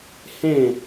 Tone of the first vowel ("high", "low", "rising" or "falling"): falling